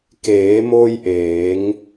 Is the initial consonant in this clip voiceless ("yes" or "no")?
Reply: yes